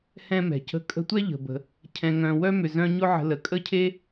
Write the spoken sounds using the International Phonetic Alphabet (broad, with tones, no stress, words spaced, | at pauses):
hɛ̃˥mɛ̤˩cə̤˦ kʼə̤˦tʷɛ˥ ʎə̤˩bə̤˩ | cʰɛ̃˨ŋœ̃˨wœ˥ mʏ˨zœ̃˦ɲʊ˥ ʕə̤˨ lə˩kʼə˦cʰe˦